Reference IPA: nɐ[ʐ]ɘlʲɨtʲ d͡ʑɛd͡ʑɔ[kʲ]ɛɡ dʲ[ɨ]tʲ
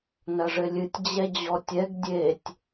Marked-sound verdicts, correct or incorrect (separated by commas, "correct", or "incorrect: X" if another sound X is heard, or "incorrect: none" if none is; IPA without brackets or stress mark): correct, incorrect: tʲ, incorrect: e